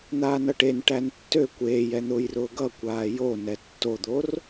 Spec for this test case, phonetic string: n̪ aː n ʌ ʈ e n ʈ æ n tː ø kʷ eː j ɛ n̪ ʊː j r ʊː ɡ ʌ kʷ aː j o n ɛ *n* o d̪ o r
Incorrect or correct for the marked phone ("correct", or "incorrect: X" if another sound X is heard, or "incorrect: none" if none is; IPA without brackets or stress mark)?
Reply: incorrect: tː